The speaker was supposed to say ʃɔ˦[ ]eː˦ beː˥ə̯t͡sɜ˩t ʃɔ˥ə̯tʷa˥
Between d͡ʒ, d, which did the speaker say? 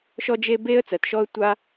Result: d͡ʒ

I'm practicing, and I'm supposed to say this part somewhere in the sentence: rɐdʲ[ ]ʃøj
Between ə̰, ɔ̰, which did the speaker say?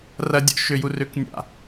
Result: ɔ̰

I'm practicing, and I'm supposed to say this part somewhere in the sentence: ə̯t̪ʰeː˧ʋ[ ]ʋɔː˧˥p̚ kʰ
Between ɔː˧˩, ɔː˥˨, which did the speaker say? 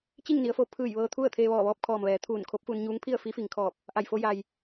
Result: ɔː˧˩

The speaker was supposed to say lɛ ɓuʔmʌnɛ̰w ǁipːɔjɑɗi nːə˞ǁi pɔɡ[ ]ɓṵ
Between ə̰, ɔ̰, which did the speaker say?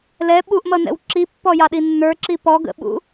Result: ə̰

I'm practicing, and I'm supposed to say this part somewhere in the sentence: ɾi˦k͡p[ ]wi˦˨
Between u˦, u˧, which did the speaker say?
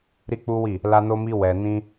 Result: u˦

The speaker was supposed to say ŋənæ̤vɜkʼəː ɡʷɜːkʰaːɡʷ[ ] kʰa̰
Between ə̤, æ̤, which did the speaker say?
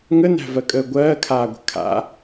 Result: ə̤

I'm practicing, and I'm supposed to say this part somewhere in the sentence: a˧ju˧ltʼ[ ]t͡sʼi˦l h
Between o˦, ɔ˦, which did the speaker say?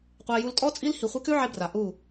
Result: ɔ˦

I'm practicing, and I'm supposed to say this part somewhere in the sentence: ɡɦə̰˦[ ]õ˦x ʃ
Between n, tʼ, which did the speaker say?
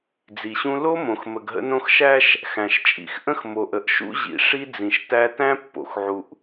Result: n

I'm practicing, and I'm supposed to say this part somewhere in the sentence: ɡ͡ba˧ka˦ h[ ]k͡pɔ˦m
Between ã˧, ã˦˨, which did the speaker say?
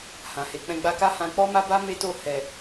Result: ã˧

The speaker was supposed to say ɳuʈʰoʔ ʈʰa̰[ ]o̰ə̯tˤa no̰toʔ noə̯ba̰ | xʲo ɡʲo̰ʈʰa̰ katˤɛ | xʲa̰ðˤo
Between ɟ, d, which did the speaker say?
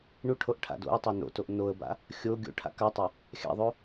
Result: d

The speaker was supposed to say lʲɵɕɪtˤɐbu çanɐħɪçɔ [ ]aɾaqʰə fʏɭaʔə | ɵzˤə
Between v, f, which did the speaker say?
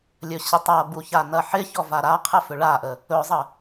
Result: v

